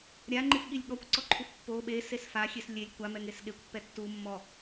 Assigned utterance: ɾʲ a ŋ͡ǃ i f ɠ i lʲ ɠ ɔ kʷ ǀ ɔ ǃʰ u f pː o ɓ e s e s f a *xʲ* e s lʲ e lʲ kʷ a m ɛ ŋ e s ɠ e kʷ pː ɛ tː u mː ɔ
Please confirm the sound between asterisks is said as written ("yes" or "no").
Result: yes